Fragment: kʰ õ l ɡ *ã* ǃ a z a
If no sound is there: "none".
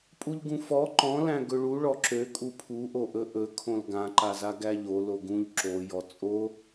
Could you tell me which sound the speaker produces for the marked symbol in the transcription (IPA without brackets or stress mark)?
ã